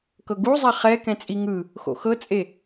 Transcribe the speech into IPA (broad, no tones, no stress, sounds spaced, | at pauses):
k ɤ ɡ u zˤ ɛ χ ɛ k ɛ̃ t͡sʼ i ŋ ɯ | x o̰ x ɤ t͡sʼ e